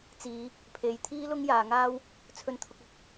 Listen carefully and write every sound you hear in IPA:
t͡siː˨˧ | pʰe˨˧jt̪ʰiː˥lʊ˥ŋ jaː˨ŋaː˥w | t͡sʰɵ˧nt̪ʰʊ˧k̚ɐ˧k̚

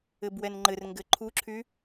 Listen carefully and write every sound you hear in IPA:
ɘbwɛnŋ͡ǃɘr ŋɡɘǃʰuǁʰy

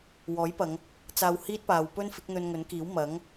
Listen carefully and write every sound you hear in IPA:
wɔː˨˥jpɐ˨˧ŋ | t͡saː˧whiː˥t̚paː˨˧w pɵ˥nfɪ˨˥k̚ n̪ɵ˧nŋɵ˨˥nkiː˨˥w mɐ˨˥ŋ

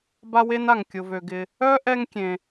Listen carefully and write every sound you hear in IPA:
ba˥we˥na˩ŋ kʲʊ˩vø˩ɡɪ˩ | œ˥ ʔɛ˥ŋkʲẽ˩

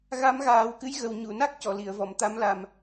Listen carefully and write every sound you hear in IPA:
ɣa˧˥mɣaː˨˩˦wkɨ˧˥jɣə˨˩w ɲu˨˩˨na˦˥k̚ cɔ˨˩˨li˨˩˨ə̯vɔ˨˩˨m t̪a˧˥mla˨˩m

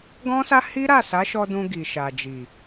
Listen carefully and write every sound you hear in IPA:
ɡɔ̃˦sa˦hi˦ ɾa˦˨sa˨˦ʃɔ˧dũ˧ ɡi˨ʃa˨d͡ʒi˨

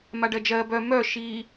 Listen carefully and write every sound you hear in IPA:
maɖɜd͡ʒɜ bœ mœ ʃi

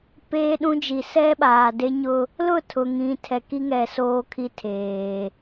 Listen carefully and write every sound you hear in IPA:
peː˦ɗũ˦d͡ʒi˨ sɛ˦ɓaː˨de˦ɲʊ˦ | lʊ˦˨tʰʊ˨ŋĩ˨ tʰɛ˨ki˦ŋɛ˨ soː˦kʰi˦ tʰeː˨

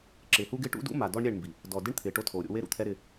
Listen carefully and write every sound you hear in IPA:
ǁɪː˨hu˦ɡɪː˦ ʈṵ˦dṵ˦ma˨ dɔ˦ɳɾʲɛ˦˨ɳmbi˨ | dɔ˨ dɪ˦ɳt̪ʰɪː˨ ʈo˦tʰoː˨ɾʲo̰˦ we˦ɾṵ˨t̪ʰɛ˦ ɾɪ˦

